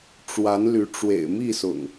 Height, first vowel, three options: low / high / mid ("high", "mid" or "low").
low